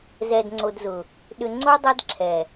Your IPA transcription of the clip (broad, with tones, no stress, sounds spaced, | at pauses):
z ɛ˨ d ŋ͡ǀ o˨ d z ʊ˨ | ɗ ʏ˨ ŋ͡ǀ o˦ dˤ ɛ˦ d ǁʰ ɛ˨